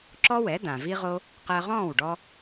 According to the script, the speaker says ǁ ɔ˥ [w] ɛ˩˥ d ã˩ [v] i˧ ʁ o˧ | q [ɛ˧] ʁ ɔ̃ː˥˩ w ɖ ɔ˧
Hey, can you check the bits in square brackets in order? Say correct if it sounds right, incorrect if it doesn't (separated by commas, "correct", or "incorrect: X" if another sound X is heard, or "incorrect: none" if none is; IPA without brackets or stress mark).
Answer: correct, correct, incorrect: ɜ˧